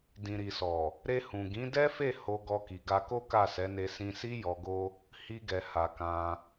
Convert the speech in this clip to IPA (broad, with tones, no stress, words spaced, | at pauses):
dĩ˨ɾi˨sɔ˨ | ɾe˧ hũ˨ɡĩ˨˦dɛ˦fe˦˨ ho˧ ɡɔ˧ ki˨ɡa˧ko˦ ka˦˨sɛ˨˦ne˧ sĩ˧si˦ jɔ˧ɡo˦ | hi˦ɡɛ˧ha˧ kã˧